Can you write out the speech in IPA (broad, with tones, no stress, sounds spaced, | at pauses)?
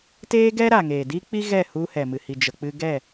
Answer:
t eː˦ ɡ ɛ˦ ɾ a˨ ŋ eː˨ d i˦ k͡p i˦ ɣ ɛ˦˨ h u˧ h ɛ˨ m ɨ˨ h i˨ d͡ʒ ə˨ k͡p ɨ˧ ɡ ɛ˦˨